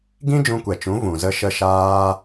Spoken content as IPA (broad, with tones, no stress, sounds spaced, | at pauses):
ɡ ĩ˦ d͡ʒ ũ˧ kʷ ɛ˨ t͡ʃ ũ˨˦ v ũ˨ z ə˧ ʃ ə˧ ʃ aː˧